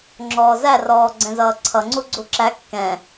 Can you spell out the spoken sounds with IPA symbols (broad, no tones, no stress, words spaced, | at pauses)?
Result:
ŋ͡ǁɔːzæ rɔːɡ͡ǀɛ̃zʌːǀʰʌ ŋ͡ǀuɡ͡ǀuǁæ kːɛ̃